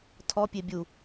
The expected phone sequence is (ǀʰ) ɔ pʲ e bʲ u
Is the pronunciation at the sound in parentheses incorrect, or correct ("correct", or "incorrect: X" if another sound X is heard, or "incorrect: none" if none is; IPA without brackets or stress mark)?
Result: incorrect: tʰ